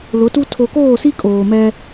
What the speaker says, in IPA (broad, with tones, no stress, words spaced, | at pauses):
lʊ˨˦tu˦ tʰo˨koː˦˨si˦ kʼoː˨mɛ˦